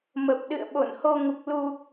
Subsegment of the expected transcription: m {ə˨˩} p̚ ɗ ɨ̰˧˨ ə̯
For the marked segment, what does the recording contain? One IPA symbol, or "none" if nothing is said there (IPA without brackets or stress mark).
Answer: ə˨˩